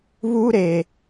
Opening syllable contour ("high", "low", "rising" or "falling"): high